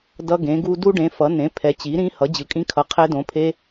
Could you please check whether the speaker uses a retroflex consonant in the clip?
yes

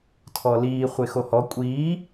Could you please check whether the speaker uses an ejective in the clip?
yes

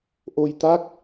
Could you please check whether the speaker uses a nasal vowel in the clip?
no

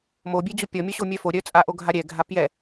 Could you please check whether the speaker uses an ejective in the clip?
yes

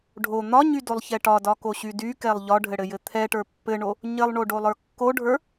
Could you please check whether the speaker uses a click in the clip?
no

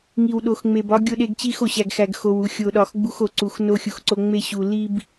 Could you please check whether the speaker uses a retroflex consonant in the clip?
no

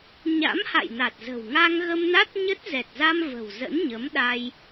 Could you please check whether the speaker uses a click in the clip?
no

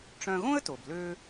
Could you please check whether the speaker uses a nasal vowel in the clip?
yes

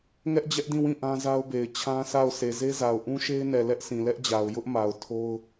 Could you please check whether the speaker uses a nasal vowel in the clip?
yes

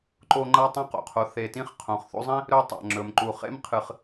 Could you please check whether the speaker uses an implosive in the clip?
no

